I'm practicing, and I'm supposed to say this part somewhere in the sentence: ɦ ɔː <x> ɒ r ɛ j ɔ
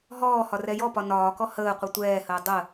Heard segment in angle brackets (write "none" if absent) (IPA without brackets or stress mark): h